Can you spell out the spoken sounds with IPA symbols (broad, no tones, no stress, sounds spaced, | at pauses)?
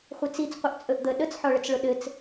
χʷ ɘ t͡s i t͡s qʷ ʌ ʔ t͡sʼ ɵ ʔ d̪ ə ɗ ə t͡s ħ ɔ ɭ ə t͡s ɭ ʊ ɗ ɘ t͡s